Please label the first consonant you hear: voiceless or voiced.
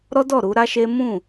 voiced